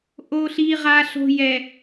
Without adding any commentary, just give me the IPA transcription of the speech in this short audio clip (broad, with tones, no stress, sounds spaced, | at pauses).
ʔ o˦ ɬ i˦ ʁ a˦ ɬ o̤˦ j ɛ˨